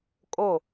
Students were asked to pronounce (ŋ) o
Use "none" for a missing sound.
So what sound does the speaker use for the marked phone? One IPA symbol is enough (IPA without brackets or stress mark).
kʼ